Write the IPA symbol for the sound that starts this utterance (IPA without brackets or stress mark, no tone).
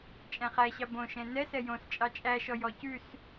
t͡ʃʼ